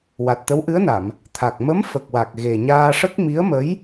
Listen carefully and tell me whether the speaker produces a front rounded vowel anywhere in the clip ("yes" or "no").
no